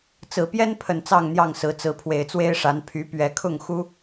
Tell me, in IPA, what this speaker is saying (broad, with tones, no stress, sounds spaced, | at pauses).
t͡s ɹ̩˨˩ p j ɛ˦ n pʰ ə˨˩ n t͡s ɑ˥˨ ŋ n̪ j ɑ˥˨ ŋ s ɹ̩˨˦ t͡s ɹ̩˨˦ pʰ w e˨˩ ɪ̯ t͡s w e˦ ɪ̯ ʂ a˨˦ n pʰ y˨˦ p ɥ ɛ˨˦ kʰ ʊ˥˨ ŋ x u˦